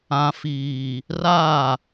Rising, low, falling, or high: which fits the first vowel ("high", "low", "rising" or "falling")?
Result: low